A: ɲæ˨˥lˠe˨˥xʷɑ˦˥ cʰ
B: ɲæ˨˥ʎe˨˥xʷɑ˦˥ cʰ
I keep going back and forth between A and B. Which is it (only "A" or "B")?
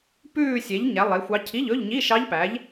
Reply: A